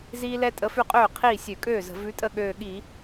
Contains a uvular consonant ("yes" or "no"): yes